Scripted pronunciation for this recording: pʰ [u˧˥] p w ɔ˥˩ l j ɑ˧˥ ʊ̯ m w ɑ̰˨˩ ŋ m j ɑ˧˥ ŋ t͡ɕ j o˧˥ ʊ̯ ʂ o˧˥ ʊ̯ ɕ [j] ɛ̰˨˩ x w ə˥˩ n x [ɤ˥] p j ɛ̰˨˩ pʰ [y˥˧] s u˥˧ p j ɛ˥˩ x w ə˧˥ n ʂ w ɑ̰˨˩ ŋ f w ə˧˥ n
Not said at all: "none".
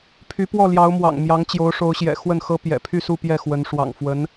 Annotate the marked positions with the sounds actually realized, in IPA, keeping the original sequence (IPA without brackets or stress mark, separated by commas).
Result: y˧˥, j, ɤ˥, y˥˧